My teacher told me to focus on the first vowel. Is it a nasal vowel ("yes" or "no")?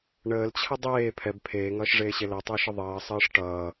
no